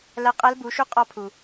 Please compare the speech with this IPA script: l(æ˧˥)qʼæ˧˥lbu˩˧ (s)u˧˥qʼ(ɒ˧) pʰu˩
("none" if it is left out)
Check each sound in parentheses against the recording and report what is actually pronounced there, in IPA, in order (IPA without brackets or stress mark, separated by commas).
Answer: æ˧, ʃ, ɒ˧